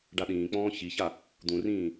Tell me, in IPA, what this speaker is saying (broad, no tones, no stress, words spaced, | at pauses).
ɖaɗĩːk͡pɔ̃ː çiça | d̪ũrĩː